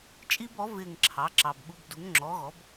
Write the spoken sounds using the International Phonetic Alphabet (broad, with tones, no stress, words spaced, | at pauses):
t͡ʃʼi˦bɔ˩˥ vɪː˦˨ŋǁʰɑ˩˥ǁɑ˨b ɓu˦b du˩˥ŋŋ͡ǁɔː˩˥ɣɔ˩˥b